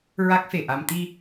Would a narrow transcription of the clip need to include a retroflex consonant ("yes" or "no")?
no